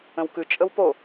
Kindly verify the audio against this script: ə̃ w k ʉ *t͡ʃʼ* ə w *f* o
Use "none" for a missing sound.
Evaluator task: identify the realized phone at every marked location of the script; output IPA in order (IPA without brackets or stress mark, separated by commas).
t͡ʃʼ, p